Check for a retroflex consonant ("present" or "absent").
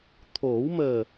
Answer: absent